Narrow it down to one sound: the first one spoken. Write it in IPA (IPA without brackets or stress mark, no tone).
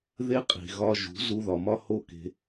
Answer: ð